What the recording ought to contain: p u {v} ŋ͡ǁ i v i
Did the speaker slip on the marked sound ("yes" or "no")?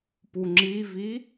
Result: yes